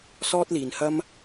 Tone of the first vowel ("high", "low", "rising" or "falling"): high